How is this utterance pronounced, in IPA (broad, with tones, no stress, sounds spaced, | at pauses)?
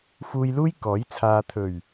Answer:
f uː˧ j l uː˥ j k ɔː˨˥ j t͡sʰ aː˧ t̪ʰ ɵ˨˩ ɥ